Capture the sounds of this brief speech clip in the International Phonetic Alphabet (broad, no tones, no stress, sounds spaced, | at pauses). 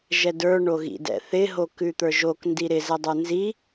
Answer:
ʒ ɛ d ə˞ ɳ o ɣ ḭ d ɛ̰ θ ɪ ɦ o k ʉ t̪ ə˞ ʒ o k n d i ɾ ɪ z ɛ dˤ ə˞ n z i